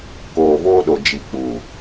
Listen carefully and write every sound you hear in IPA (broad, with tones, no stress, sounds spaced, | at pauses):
k oː˨ v oː˦ ɗ o˨ d͡ʒ i˨ k͡p u˨